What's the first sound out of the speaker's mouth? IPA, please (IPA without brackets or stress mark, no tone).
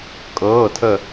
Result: kʼ